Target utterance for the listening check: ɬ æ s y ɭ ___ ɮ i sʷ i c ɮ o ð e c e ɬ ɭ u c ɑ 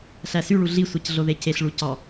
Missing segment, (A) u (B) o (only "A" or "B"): A